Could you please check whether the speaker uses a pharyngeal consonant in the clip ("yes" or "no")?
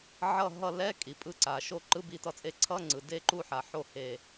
yes